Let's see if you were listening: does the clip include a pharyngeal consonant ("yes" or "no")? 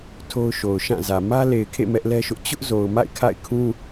no